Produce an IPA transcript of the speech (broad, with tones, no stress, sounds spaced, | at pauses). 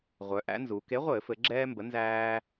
ʁʷ œ˩˧ ʔ æ̰˨˥ n z u˩˧ k e˨˥ ʁʷ ɘː˧˩˧ f ɘ˩˧ ɡ͡ǁ ɛː˦ m b ə˨˥ n z æː˦